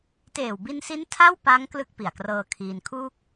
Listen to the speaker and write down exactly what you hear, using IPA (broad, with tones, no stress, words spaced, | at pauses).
teː˨˩wbi˧nsi˦˥n tʰa˥˩wpa˦˥ŋ klɯ˥˩k̚pi˨˩a̯krɤː˧kʰiː˧n kʰuː˥˩k̚